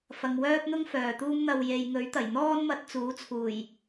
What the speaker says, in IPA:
f ɐ˨ ŋ w œː˥ p̚ n̪ ʊ˥ ŋ f œː˨˩ t̪ uː˥ m n̪ ɐ˧ w j e˨ j ŋ ɵ˨˥ ɥ t̪ ɐ˨˩ j n̪ ɔː˥ n m ɐ˧ t̚ t͡s uː˨˥ t͡sʰ uː˨˩ j

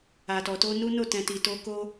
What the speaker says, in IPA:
a˨ t ɔ˨ t o˧ n u˦ n o˦˨ t ɛ̃˨ t i˨ t o˧ k o˦

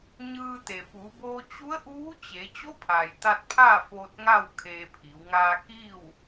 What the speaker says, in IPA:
ɲ ɯː˧ t̪ e˩ f uː˩˧ b oː˧ t͡ɕ u˧˥ ə̯ ʔ uː˧˥ t͡ɕ e˩˧ t͡ɕ o˧˥ pʰ aː˩ j t̪ a˧ t̚ pʰ aː˥˨ f oː˧ t̚ ŋ a˥˨ w kʰ eː˧ pʰ i˩˧ w ŋ aː˧ k iː˥˨ w

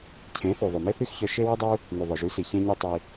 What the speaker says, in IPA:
cʰ ẽ˨˦ θ u˨ ðˤ y˨ m e˦ θ y˦ x ç œ˧ ʃ e˦ w i˦ dˤ u˦ | n y˨ ðˤ ɵ˨ ʒ y˨˦ s i˨ ç ẽ˧ ɲ y˧ tˤ i˧

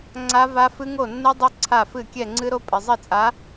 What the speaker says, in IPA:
ŋ͡ǀ a˦˥ v a˦˥ f ɨ˦˥ ŋ o˥˩ nː ɨ˦˥ dˤ ɘ˦˥ ǀʰ a˥˩ f ɨ˥˩ kʲ ɛ˥˩ ŋ͡ǀ ɨ˦˥ ɾ o˦˥ pʼ ɘ˩ zˤ ɘ˥˩ t͡sʼ a˨˥

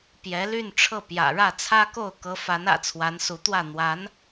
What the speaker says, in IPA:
p j ɛ˧˥ l y˥˧ n ʈ͡ʂʰ ɤ˥˩ p j ä̰˨˩ ɻ ä˥˩ t͡sʰ ä˥ k o˥˩ ʊ̯ k ɤ˧˥ f a˧˥ n ä̰˨˩ t͡sʰ w a˧˥ n s u˧˥ t̪ w ä˥˩ n̪ w a˧˥ n

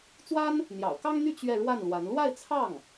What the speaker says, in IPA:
t͡s w a˥ n | n̪ j ɑ̰˨˩ ʊ̯ k ɑ˥ ŋ n̪ y˥˧ t͡ɕ ɥ ɛ˥˧ ɻ w a˥˩ n l w a˧˥ n l w a˥˧ ɪ̯ t͡sʰ ɑ˥˩ ŋ

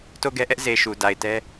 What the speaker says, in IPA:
t o˦˨ ɡ ɛ˦ ʔ ɛ˦ ʔ z e˨ ʃ u˨ d a˨ ɪ̯ t ɛ˦

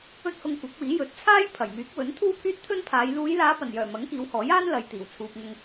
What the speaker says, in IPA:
ɵ˥ t̚ h ʊ˧ ŋ kʷ ɐ˨˥ k̚ w iː˨˥ j ɵ˨˥ t̚ t͡sʰ aː˥ j pʰ ɐ˨˩ j m yː˨˥ k̚ w ɵ˨˥ n t̪ʰ uː˥ pʰ yː˥ t̚ t̪ʰ ɵ˥ n pʰ aː˨˧ j l uː˨˧ j l aː˨˧ p ɐ˨˩ n j œː˨˩ m ɐ˨˥ ŋ k iː˨˧ w h ɔː˨˥ j aː˥ n l ɐ˨ j t̪ iː˨˩ w t͡sʰ uː˨ p̚ ŋ ʊ˧ ŋ

